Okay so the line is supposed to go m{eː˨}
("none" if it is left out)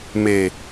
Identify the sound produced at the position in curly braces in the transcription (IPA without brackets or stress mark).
eː˨